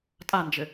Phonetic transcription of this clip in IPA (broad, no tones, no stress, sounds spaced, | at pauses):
tʼ a n d͡ʒ ɘ